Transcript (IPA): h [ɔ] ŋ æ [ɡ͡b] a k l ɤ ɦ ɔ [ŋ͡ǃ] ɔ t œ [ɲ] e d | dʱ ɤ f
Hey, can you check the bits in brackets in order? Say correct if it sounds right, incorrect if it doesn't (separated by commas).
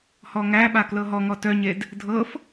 correct, incorrect, incorrect, correct